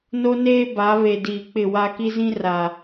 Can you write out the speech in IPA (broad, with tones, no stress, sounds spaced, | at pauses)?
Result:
n o˦ n eː˦ b a˨˦ β e˨ d iː˨ k͡p ɪ˦˨ w a˦ k i˦ z ĩ˦ r a˨